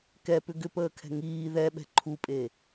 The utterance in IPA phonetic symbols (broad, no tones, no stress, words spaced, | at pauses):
kɛpʏ ɡʏpəːkʰɛ̤ ŋiː ðɛɓɛ̤ ǃʰupʼe